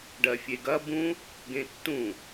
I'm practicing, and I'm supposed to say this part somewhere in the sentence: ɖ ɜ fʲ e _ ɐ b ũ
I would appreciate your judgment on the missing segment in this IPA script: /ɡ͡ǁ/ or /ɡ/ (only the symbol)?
ɡ